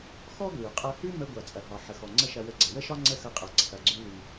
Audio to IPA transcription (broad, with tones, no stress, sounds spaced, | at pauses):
x ɔ˥ ɡ l ʉ˩ qʼ ɐ˧ h ʉ˥ m ə˥ ɡʷ a˩ t͡sʼ ɐ˩ ɦ ɒ˩ ħ ə˩ x ɔ˩ ŋ͡ǀ ə˥ ʃ ɐ˧ w ə˧ ɡ͡ǀ ɐ˩ w ə˥ ʃ ɒ˥ ŋ͡ǀ ə˥ x ɐ˧ qʼ a˩ ǀʰ ɐ˩ ɡ͡ǀ ʉ˧ l ʉ˩